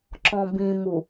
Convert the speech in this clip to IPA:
ǁ ɔ̃ b ĩ m u

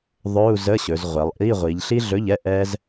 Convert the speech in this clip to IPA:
ðˤ ɵ˧˥˧ u̯ z ə˧˥˧ ɕ ɵ˩˧ z ʁʷ ɛ˩˧ lˠ ʔ i˧˥˧ ʁʷ i˩˧ ʎ ɬ i˥ ɮ ɵ˧˥˧ ʎ ɛ˧˥˧ ʔ ɛ˥ z

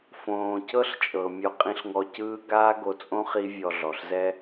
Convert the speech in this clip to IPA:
f õː˩ c ɤ˥ ɬ t͡ʃʼ ɤ˩ mʲ ɔ˧ qʼ ĩ˧ ɬ ŋ ɔ˧ c ɯː˥ ɡ aː˥ ɡ o˧ t͡sʼ õ˥ χ i˥ vʲ ɔ˧ ɮ ɔ˩ ɬ z ɛ˥

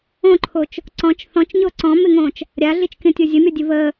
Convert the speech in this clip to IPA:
õ ǃʰ o t͡ʃ | ǀ ɔ̃ t͡ʃ θ ɔ̃ t͡ʃ ɲ o ǀ ɔ̃ m ɪ ŋ õː t͡ʃ | ɾʲ a ɮ i t͡ʃ kʲ õ tʲ o zʲ ə mʲ ɔ dʲ ə v əː

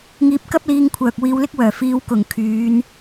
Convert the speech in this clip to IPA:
ŋ iː˧ p̚ k ɐ˥ p̚ l iː˧ ŋ kʷʰ œː˨ k̚ w iː˧ w l ɪ˥ k̚ w œː˨˩ f iː˧ w k ʊ˨˩ ŋ kʰ yː˨˧ n

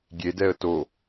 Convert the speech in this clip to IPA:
ɡʲ e d ɛ ə̯ t o

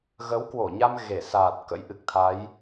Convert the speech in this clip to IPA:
ɣ ə˨˦ w k w o˧˩ ɲ a˧ m ɣ e˧˩ s aː˨˩ t̚ k ə̰˧˥ j ʔ ɨ˨˩ k̚ t̪ʰ a˨˦ j

